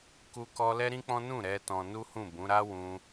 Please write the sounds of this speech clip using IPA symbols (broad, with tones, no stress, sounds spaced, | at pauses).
k u˦ k ɔ˦ l ɛ˦ ɾ ĩ˦ k͡p ɔ̃˦ n ũ˦˨ ɾ ɛ˧ t ɔ̃˧ n u˦ h ũ˦˨ b ũ˨˦ ɾ a˦ w ũ˧